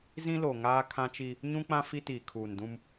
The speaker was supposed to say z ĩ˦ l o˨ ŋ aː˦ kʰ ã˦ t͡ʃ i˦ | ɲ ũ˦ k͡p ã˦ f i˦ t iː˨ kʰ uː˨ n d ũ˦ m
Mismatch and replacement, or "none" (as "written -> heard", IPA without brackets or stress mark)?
none